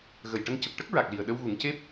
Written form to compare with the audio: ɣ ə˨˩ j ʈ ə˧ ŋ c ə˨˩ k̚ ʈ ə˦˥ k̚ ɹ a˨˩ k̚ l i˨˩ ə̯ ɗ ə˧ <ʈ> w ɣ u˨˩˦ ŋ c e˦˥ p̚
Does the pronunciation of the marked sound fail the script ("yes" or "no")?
yes